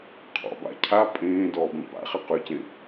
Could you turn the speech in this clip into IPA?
qʰ ɔ̰ b a̰ cʰ a pʼ ẽː d ɔː b ẽ p a̰ χ ɪ q ʉ c ẽ

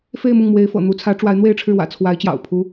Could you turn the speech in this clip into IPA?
f e˥˧ ɪ̯ m ʊ˥˩ ŋ m w e˧˥ ɪ̯ f ɤ̰˨˩ n̪ u˧˥ t͡sʰ ä˧˥ ʈ͡ʂ w a˧˥ ɪ̯ n̪ w e˥˧ ɪ̯ ʈ͡ʂʰ ɻ̩˥˩ w ä̰˨˩ t͡sʰ w a˧˥ ɪ̯ t͡ɕ j ɑ̰˨˩ ʊ̯ pʰ u˥

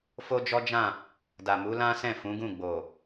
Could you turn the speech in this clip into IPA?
f o˦ d͡ʒ ɔ˦ d͡ʒ ã˦˨ | d a˨ m u˨˦ l ã˦ s ɛ̃˦˨ f ũ˨˦ ɡ ũ˦˨ ɡ͡b o˨

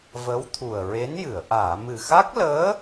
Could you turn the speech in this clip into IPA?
v ə˧˥ w t̪ʰ u˨˩ ə̯ ɹ e˧˥ n j ɨ˨˩˨ ə̯ ʔ aː˨˩˨ m ɨ˨˩ x a˦˥ k̚ l əː˧˥

